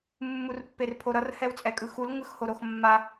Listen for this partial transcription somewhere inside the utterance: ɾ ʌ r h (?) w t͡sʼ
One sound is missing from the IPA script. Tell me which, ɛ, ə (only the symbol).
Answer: ɛ